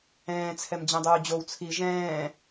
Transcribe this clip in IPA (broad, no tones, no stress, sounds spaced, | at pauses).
ɛ̃ː t͡sʰ ɛ m d͡ʑ ɛ̃ dˤ uː d͡ʑ o w t͡sʰ i ʒ ɛ̃ː